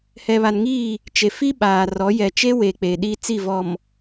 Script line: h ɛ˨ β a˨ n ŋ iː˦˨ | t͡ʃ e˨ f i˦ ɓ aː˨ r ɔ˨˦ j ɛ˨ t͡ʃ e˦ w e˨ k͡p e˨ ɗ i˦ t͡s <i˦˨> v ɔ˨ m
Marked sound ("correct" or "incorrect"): correct